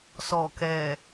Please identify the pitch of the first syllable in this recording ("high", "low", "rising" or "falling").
low